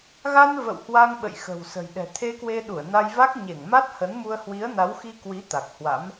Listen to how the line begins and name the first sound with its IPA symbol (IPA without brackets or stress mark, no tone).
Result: ɣ